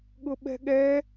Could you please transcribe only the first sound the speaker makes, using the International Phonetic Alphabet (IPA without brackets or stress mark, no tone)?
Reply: ɠ